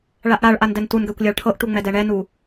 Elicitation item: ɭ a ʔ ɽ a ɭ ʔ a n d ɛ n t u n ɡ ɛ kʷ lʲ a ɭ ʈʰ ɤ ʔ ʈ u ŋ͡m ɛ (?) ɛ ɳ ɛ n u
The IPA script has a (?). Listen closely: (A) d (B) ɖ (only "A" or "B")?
A